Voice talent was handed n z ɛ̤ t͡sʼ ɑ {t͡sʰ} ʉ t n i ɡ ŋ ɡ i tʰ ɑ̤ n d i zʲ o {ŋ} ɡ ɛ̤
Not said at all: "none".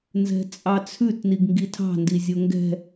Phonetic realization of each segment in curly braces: t͡sʰ, ŋ

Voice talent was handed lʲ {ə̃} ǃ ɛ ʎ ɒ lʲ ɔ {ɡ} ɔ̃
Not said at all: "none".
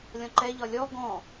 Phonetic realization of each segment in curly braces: ɔ̃, ɡ

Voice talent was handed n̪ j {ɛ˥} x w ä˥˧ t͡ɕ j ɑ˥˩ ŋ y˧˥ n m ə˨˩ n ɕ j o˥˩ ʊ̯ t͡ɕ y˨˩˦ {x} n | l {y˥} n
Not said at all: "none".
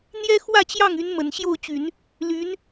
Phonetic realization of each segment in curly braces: ɛ˥, none, y˧˥

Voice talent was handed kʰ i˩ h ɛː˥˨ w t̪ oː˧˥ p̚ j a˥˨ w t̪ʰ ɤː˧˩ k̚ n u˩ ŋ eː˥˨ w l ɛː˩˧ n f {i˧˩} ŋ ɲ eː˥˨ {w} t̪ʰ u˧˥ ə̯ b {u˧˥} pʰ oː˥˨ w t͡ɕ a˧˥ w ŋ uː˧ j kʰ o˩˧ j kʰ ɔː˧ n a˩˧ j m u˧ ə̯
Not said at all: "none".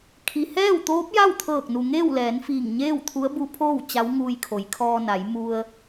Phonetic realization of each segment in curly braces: iː˧˩, w, u˧˥

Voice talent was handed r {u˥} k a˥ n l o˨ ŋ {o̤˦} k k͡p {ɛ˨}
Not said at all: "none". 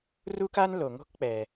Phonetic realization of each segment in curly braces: u˥, o̤˦, ɛ˨

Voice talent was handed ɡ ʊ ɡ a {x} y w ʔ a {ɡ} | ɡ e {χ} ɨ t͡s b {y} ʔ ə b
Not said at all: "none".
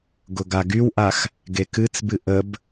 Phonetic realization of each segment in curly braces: ɡ, x, k, ɨ

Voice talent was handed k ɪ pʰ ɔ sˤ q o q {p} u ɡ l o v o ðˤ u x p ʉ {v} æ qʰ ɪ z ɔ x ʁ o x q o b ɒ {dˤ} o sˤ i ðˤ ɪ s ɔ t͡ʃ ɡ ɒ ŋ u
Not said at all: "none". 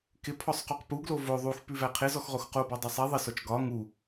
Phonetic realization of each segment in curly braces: p, v, dˤ

